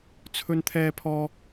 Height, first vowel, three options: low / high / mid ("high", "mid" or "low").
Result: mid